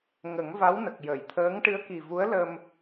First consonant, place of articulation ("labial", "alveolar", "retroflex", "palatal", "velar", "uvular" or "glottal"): velar